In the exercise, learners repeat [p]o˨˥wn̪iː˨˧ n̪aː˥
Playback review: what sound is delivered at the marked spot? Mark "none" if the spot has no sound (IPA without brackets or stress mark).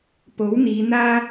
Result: p